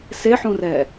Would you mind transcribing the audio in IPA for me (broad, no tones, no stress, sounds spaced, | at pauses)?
s e ħ ũ r ɛ